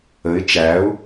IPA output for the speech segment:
əɪ̯ t͡ʃæʊ̯

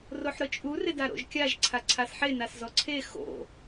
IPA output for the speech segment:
roħɾʊt͡ʃʼu rɪdaɾo̰ʒkʲaʒ ǀʰaǀʰasħe naszɔǀʰe xo̰

